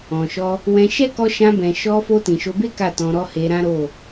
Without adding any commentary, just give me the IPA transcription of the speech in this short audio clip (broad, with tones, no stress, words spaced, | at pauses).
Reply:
ɔ̃˨ʃɔ˧ | wɛ̃˧ ʃɛ˦kɔ˧ ʃã˧bɛ̃˨ ʃɔ˧fo˧ tĩ˨ʃo˨˦be˦ ka˦˨tɔ̃˧ɾɔ˦ he˧ɾã˦ ɾo˦˨